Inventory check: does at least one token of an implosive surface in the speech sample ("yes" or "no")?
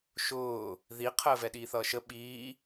yes